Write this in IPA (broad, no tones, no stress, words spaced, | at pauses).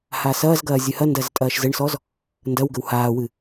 hasɐːzɡɐː zʲɨhɐndɐz tʼɐːʃzɘɳsɔz | ndɐw ɡɘwhaːwɨ